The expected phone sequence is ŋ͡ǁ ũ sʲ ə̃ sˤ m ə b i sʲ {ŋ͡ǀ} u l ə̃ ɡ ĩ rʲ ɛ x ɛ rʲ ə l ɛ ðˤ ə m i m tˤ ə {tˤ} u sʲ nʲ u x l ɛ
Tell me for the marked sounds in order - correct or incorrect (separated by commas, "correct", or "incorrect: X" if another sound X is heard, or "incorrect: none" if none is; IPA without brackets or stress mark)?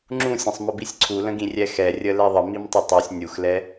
incorrect: ǀʰ, correct